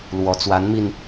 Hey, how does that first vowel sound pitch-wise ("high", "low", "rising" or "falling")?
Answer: rising